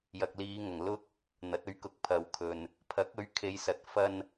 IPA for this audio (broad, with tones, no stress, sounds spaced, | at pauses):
j ɐ˨ k̚ l iː˨˧ ŋ ɐ˨˩ ŋ l ʊ˥ k̚ | n̪ ɐ˨˥ t̚ ɵ˨˥ ɥ k ʊ˨˥ k̚ pʰ ɐ˨ w kʰ ɵ˨ n | pʰ ɐ˨˥ k̚ ɵ˨˥ ɥ kʰ e˨˧ j s ɐ˨˥ t̚ f ɐ˧ n